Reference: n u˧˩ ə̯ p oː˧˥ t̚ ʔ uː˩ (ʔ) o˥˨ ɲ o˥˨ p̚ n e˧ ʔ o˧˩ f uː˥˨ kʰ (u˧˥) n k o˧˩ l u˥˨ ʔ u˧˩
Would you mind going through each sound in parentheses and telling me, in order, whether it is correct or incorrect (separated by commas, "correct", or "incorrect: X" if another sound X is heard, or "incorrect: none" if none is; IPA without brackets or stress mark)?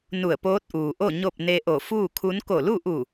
correct, correct